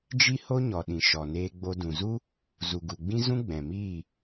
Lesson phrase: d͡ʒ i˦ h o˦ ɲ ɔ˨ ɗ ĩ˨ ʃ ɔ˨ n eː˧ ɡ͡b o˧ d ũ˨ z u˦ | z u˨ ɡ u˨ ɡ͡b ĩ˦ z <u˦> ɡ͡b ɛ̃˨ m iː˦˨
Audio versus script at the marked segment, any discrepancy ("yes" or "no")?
yes